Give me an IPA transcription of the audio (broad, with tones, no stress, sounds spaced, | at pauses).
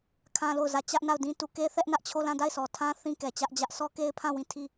kʰ ã˦ l o˦˨ ʊ̯ z ä˦˨ t͡ɕ ä˦ ʔ n a˦˨ ʊ̯ d ĩ˦ t u˦˨ k e˦ θ ɛ˦ ʔ n ä˦ ʔ t͡ɕʰ o˦˨ l ã˦˨ d a˦˨ ɪ̯ sʰ ɔ˨ tʰ ã˦ θ ĩ˦ k ɛ˨ t͡ɕ ä˦ ʔ d͡ʑ ä˦ ʔ sʰ ɔ˦ k e˦ ɪ̯ pʰ ã˦˨ w ĩ˦˨ tʰ i˦˨